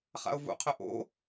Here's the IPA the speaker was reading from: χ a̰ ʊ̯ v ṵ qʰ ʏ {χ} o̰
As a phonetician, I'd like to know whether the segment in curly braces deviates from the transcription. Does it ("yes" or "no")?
yes